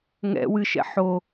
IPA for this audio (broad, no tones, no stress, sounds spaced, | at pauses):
ŋ ɛ̰ w ɨ ʃ ɛ̰ ħ o